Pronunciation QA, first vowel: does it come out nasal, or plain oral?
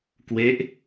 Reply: oral